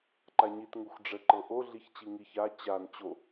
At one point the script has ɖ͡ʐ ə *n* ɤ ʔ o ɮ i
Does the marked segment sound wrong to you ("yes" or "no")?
yes